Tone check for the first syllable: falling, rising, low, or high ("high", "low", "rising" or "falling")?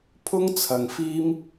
high